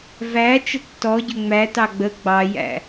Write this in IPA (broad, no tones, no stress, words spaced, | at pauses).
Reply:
væ t͡ʃətːɔɟʏ ŋ͡mætɑ ɡ͡bə ɡ͡bɑjæ̰